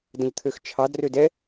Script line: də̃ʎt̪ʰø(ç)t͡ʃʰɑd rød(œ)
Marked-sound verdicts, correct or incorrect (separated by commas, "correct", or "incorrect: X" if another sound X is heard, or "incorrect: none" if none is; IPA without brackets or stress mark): incorrect: x, incorrect: ɛ